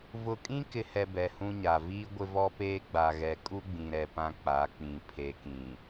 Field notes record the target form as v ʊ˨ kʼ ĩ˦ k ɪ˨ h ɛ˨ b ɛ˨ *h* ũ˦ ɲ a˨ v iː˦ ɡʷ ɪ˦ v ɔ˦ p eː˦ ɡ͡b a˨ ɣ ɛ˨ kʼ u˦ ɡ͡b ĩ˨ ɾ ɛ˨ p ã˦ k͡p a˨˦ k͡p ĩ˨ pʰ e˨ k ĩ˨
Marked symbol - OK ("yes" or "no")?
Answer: yes